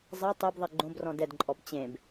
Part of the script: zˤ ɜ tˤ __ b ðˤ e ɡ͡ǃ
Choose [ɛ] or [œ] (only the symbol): ɛ